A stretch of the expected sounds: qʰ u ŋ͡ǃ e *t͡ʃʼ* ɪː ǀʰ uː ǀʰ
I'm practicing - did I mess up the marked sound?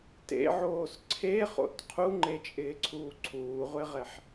no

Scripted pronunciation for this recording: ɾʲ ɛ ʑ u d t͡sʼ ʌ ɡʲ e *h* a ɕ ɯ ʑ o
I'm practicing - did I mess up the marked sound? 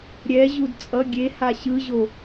no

